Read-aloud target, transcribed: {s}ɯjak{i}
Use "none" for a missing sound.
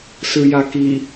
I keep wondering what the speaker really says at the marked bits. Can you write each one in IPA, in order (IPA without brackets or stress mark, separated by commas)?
s, i